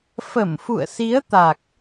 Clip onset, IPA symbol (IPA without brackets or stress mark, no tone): f